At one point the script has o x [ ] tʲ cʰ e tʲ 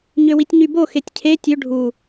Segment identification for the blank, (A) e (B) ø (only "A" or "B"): A